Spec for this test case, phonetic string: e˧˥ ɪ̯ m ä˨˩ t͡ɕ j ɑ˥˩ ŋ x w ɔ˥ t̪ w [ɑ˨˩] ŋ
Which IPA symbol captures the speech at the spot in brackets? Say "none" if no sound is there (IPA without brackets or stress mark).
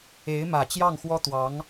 ɑ˧˥